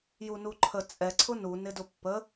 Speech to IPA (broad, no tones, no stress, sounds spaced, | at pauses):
j u n u ǃʰ ə t͡sʼ ɛ ǀʰ ʊ n u n ɪ d ʊ pː ə